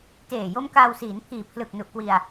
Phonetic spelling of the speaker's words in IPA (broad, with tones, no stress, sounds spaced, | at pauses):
t eː˨˩ j o˦˥ m k aː˧ w s iː˩˦ n pʰ iː˨˩ pʰ l ɯ˨˩ k̚ n u˨˩ ʔ k w i˧ a̯